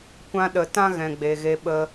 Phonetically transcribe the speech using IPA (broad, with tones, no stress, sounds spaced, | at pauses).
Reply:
kʷ ã˧ ɗ ə˨ t ã˦ ɣ ɛ̃˨ ɡ͡b e˨ ɣ e˧ ɓ ə˧